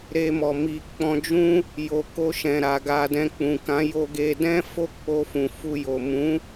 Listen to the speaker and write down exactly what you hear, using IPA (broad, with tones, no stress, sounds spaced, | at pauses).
ɾ e˧ m ɔ˨ m i˨ k͡p ɔ̃˧ d͡ʒ ũ˦ | j o˨ k o˧ ʃ ɛ̃˨ ɾ a˨ ɡ a˨ d ɛ̃˨ k͡p ũ˨ k ã˨˦ j o˧ ɡ e˧ d ɛ̃˦ f o˦˨ k͡p o˧ f ũ˨ f u˧ j o˨ m ũ˨˦